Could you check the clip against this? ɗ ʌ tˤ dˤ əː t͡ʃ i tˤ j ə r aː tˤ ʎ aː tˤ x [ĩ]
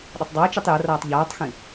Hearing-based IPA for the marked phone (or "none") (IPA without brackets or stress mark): ĩ